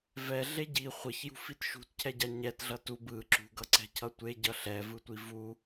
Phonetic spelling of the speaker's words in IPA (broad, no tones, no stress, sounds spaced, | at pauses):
v ɛ ɮ e ɟ i χʷ ʌ ç j ṳ f i t ʃ ṳ t cʰ ɛ ɟ a ɲ ɛ t ɮ ʌ t u b ɯ ǁ ṳ ɡ ʌ ǀ ɛ̤ cʰ ʌ tʷ e ɟ ʌ ɬ ɛ v ɯ tʷ i v u